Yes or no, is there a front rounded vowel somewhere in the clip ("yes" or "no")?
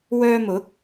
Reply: yes